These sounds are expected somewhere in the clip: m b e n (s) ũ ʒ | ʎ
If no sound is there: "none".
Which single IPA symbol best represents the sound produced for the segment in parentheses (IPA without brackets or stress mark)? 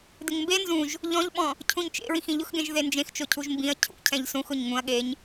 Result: z